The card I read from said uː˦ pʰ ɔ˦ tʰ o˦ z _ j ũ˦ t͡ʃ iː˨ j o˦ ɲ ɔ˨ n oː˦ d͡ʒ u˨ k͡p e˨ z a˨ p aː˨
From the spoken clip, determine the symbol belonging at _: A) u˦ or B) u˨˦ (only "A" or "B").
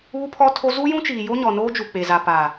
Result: A